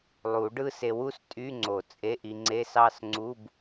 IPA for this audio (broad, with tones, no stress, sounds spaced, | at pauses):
lˠ u˨˩˦ ɖ ɯ˥˧ s e˧ w u˥˧ s tʼ y˧˥˧ ŋ͡ǀ o˨˩˦ t͡sʼ e˧˥˧ ʔ i˧ ŋ͡ǀ e˧˥˧ s ɑ˥˧ s ŋ͡ǀ u˧˥˧ b